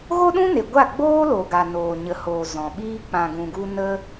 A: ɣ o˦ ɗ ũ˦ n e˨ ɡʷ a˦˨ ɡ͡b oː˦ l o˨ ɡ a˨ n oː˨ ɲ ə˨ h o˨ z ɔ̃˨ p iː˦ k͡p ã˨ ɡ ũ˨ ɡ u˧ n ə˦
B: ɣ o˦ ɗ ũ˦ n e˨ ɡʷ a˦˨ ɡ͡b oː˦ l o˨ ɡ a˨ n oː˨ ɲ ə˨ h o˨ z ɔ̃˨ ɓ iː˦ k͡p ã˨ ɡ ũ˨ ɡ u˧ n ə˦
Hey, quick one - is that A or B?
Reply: B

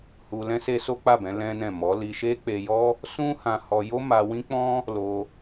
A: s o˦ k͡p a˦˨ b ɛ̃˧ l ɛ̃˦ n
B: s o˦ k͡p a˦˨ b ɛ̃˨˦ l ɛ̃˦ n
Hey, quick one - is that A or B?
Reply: B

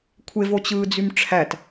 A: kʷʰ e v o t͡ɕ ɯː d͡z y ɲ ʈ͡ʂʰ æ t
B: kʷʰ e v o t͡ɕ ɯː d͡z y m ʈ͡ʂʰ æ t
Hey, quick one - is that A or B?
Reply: B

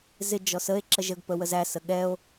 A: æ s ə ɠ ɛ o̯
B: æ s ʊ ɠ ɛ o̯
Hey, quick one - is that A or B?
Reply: A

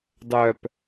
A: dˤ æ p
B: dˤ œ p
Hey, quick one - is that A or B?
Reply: B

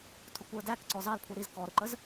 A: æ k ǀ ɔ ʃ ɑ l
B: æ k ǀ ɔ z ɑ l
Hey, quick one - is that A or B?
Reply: B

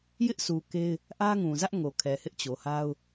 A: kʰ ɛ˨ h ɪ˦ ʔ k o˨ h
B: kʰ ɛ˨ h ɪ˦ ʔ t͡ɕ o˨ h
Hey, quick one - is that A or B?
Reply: B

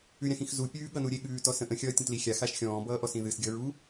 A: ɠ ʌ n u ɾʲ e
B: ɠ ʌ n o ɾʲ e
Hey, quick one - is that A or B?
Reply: A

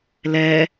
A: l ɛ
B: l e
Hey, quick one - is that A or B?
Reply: A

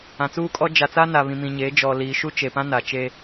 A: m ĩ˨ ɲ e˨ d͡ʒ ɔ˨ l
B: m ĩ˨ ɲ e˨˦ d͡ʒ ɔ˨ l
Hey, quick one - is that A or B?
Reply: B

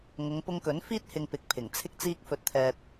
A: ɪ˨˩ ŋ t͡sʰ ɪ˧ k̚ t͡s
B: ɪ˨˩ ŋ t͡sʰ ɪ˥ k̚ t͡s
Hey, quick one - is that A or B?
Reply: B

